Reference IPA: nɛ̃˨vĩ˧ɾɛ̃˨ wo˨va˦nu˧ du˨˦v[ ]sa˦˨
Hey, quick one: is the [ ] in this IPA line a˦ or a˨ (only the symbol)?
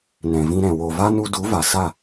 a˨